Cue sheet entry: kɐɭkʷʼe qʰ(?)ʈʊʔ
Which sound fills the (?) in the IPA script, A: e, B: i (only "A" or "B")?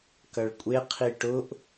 B